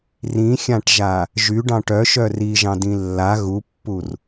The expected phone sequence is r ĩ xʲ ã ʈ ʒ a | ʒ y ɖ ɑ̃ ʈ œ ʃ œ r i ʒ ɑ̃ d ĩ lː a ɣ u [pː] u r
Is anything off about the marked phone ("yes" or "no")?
no